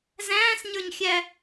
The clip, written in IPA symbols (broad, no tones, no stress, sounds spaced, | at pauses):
z æ̃ː s ɲ ə˞ ɲ xʲ æ